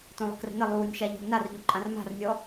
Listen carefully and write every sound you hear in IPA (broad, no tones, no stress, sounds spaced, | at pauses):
t õ lˠ ə̤ k r ə̤ n ə lˠ uː nʲ ʃ a ʎ ə̤ ʎ n a r ʎ o ǃʼ ã r m a̤ r nʲ ɔ